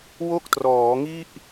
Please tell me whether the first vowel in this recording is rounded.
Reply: yes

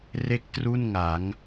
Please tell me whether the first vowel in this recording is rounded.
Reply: no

